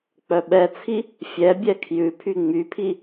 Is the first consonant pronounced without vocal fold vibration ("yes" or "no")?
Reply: yes